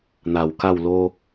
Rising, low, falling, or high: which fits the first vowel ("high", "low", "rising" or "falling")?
low